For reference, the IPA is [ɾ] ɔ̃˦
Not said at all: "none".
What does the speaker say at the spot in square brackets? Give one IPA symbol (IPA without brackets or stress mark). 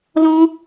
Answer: l